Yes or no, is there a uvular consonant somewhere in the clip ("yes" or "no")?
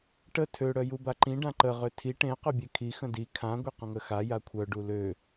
yes